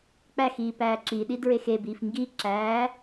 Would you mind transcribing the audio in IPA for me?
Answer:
k͡p æ x iː p æː ǁ i ɗ i d ɹ e x e b iː f ŋ ɡ i ǁ æː

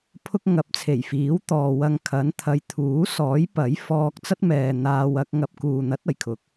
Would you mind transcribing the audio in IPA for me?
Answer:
pʰ ʊ˧ k̚ ŋ ɐ˨˥ p̚ t͡sʰ e˨˩ j f iː˨˥ w t̪ ɔː˨ w ɐ˧ ŋ kʰ ɐ˨˥ n t̪ʰ ɐ˨˧ j t̪ʰ uː˨˥ s ɔː˨˥ j p ɐ˨˥ j f ɔː˧ k̚ t͡s ɐ˥ t̚ m ɛː˨ n̪ aː˧ w ɐ˥ k̚ ŋ ɐ˥ p̚ k uː˨ n̪ ɐ˨˥ t̚ ɐ˨˩ j kʰ ʊ˨˥ k̚

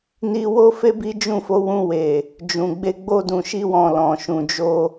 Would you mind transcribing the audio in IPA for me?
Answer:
n i˧ w o˦ f e˦ b i˦ d͡ʒ ũ˦˨ f o˨˦ w ũ˧ w e˨ | d͡ʒ ũ˨ ɡ͡b e˧ ɡ͡b o˧ d ũ˨ ʃ i˧ w ɔ̃˨ l ɔ̃˨ ʃ ũ˨ d͡ʒ o˧

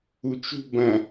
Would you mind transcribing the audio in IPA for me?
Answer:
u t͡ʃ ṳ b ɐ̃

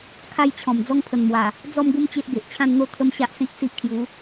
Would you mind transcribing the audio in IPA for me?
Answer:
kʰ a˥˧ j t͡ɕʰ ɔ̃˨˩ m d͡z ɔ˦ ŋ pʰ ə˨˩ n m w a˨˩ | d͡z ɔ˥˧ m ɡ u˦ m t͡ɕ e˦ ʔ ɡ e˨ ʔ t͡ɕʰ ã˥˧ n n̪ o˥˧ t̪ʰ ə˦ m ɕ a˦ ʔ s ẽ˦ k̚ s i˦ ʔ kʰ j u˨˦

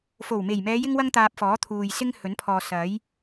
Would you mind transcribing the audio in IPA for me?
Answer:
f o˨˩ w m e˨˩ j m ɛː˨˧ j ɪ˥ ŋ w ɐ˥ ŋ t̪ aː˧ p̚ f ɔː˨˥ t̪ʰ uː˨ j s ɪ˥ ŋ h ɵ˨˥ n pʰ ɔː˨ s ɐ˨˥ j

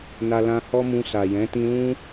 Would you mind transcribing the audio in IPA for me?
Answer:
n a˧ l ã˧ h ɔ˦ m ũ˧ s a˨ j ɛ̃˨˦ t ĩ˧ l ũ˦

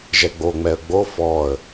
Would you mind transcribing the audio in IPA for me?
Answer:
ʒ ɛ ɡ͡b o ŋ͡m ɛ ə̯ ɡ͡b o f ɔː ə̯

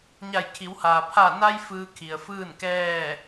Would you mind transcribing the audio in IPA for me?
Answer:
ɲ a˧˩ j kʰ i˩˧ w h aː˩ pʰ a˧˩ n a˧ j f ɯː˧ kʰ i˩ ə̯ f ɯː˥˨ n k ɛː˥˨

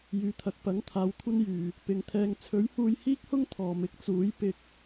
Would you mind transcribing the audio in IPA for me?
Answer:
j yː˨˧ t̪ʰ ɐ˨˥ k̚ p ɐ˨˥ ŋ t̪ʰ aː˨˧ w kʷʰ ɐ˥ n j yː˨ | p ɪ˨ ŋ t̪ʰ ɛː˧ ŋ t͡sʰ ɵ˨˥ ɥ h uː˧ j h iː˥ k̚ h ʊ˥ ŋ t̪ʰ ɔː˨ m ɪ˨˥ k̚ t͡s uː˨˥ j p ɪ˧ k̚

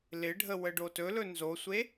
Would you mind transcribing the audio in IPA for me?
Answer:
l ɪ ɖʱ ə w ə ɖ o t ɵ l ɵ n z o sʷ e

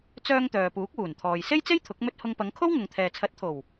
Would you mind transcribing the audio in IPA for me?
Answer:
t͡s œː˧ ŋ t̪ œː˨ p uː˨˥ k̚ w uː˨˩ n t̪ʰ ɔː˨ j s e˥ j t͡s e˥ j t̪ʰ ʊ˨˥ k̚ m ɵ˥ t̚ h ʊ˧ ŋ p ɐ˨˧ ŋ kʰ o˥ w ŋ ʊ˨ ŋ t̪ʰ ɛː˨ t͡sʰ ɐ˨˥ t̚ t̪ʰ o˨˩ w

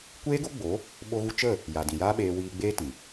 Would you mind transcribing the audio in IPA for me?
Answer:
kʷ eː˦ ɡ o˦ ɡ͡b o˨˦ | ɓ o˦ ɣ u˦ t͡ʃ ə˦˨ | j a˨ d ĩ˨ j aː˦ ɓ eː˧ w iː˧ ɡ͡b eː˦ t ĩ˨

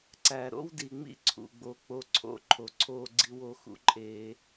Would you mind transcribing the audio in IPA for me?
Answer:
ǀ æ˨ ɾ o̰˦ w d i˨ ŋ͡m ḭ˦ ǀʰ ṵ˨ ɡ͡b o˨ k͡p o˦ ǀʰ o̰˦ ǃʰ o˨ ǀʰ oː˦ ɡ͡ǀ i˦ w o˦ x ṵ˦ ǃʼ eː˦

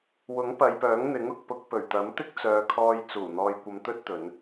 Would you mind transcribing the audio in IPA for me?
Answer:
w ʊ˨˥ ŋ p ɐ˨˧ j p œː˨˥ ŋ n̪ ɪ˨˥ ŋ ʊ˨ k̚ p ʊ˧ k̚ p ɵ˨˩ ɥ t̪ ɐ˨˥ m t̪ ɪ˥ k̚ t͡s œː˨ kʰ ɔː˧ j t͡s uː˨˩ n̪ ɔː˧ j kʷ ɐ˧ m t̪ ɵ˥ t̚ t̪ ɵ˨˧ n

